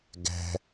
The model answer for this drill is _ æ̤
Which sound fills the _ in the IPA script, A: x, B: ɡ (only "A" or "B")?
B